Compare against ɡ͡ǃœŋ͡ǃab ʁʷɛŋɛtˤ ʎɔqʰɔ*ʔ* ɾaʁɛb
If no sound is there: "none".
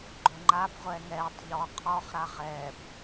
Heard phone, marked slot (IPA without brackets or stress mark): χ